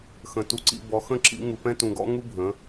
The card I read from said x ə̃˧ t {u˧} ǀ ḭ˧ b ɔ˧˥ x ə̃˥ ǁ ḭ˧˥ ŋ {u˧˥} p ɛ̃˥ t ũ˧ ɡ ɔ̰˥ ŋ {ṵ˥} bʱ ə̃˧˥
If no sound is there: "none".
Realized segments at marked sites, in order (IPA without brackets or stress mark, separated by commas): u˧, u˧, u˥